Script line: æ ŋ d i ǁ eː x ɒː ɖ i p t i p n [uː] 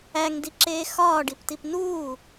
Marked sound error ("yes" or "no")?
no